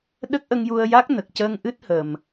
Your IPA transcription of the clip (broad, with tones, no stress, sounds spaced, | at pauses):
ɗ ə˦˥ k̚ ʔ ə˧ ŋ j u˧ ə̯ j a˦˥ k̚ n ə˨˩ k̚ c əː˧ ŋ ʔ ɨ˦˥ t̚ h ə˨˩ m